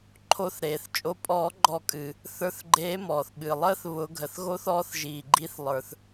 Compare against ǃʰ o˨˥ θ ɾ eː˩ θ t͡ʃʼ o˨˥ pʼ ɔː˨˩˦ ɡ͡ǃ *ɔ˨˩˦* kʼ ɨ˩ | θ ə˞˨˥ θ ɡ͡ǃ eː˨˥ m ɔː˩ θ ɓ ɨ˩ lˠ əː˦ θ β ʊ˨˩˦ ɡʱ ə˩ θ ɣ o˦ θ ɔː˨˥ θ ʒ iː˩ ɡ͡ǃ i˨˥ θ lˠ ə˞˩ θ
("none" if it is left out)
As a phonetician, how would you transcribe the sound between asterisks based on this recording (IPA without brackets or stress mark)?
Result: ɔ˨˩˦